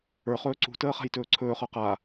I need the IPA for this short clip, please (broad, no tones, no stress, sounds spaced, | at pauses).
ə˞ χ ɵː ǀ ṳ t əː χ a̤ j t ɵː ǀʰ ɵː χ ə˞ q a